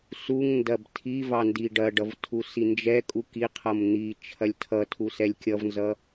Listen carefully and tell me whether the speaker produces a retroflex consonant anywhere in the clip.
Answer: yes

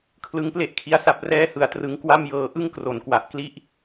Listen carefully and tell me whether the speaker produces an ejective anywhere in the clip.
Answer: no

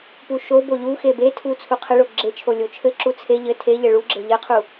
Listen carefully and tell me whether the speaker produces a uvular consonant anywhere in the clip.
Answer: yes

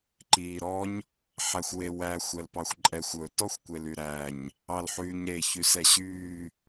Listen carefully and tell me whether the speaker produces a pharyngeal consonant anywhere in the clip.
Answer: yes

